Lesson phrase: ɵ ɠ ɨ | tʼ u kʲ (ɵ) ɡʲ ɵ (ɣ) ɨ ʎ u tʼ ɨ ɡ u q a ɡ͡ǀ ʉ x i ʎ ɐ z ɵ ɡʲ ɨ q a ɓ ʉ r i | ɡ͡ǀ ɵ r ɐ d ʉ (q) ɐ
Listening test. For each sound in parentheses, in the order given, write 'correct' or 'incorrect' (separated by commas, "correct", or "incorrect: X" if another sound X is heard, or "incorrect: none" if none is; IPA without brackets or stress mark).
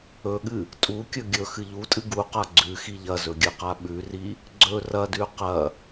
correct, incorrect: x, correct